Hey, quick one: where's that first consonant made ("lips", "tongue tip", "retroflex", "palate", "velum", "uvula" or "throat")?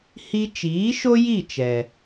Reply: throat